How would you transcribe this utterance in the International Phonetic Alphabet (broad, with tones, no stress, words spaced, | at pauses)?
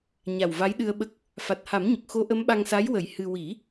ɲa˨˩wva˧˥jɗɨ˧ə̯ɓə˦˥k̚ | fa˨˩t̚ha˨˩˦m ɲə˨˩k̚xo˧˥ʔə˧˥mɓa˧ŋ sa˧˥jwə˨˩˦j hɨ˧ wi˨˩˦